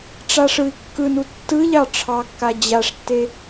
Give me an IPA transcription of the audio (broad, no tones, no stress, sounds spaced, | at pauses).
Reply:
ʈ͡ʂ a ʂ ɯ i̯ kː ɯ n u tː ɯ ʎ ɑ ʈ͡ʂʰ ɑ kː a d͡ʑ a ʂ tː e